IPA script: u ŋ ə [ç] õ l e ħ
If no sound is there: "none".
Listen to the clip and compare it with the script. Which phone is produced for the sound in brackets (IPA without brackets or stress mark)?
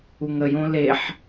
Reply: j